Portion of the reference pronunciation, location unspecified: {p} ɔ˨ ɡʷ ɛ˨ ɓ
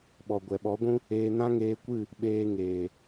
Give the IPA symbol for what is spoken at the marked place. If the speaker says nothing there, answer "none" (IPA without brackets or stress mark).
ɓ